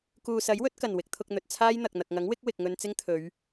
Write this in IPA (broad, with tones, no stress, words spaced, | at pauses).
kuː˨sɐ˨˥jwɵ˨˥t̚kɐ˨˩n wɪ˧k̚t̪ʰʊ˧k̚n̪ɵ˨t̚ t͡sʰaː˥jn̪ɐ˨k̚ n̪ɐ˨k̚ŋɐ˨˥ŋwɪ˨˥k̚ wɪ˨k̚ŋɵ˧n t͡sɪ˥ŋt̪ʰɵ˨˧ɥ